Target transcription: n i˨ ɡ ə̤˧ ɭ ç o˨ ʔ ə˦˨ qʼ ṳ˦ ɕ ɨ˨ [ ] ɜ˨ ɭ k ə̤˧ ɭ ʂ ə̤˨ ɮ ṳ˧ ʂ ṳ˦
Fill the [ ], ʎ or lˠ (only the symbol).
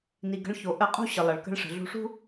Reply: lˠ